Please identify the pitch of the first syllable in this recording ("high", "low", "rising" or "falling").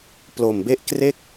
low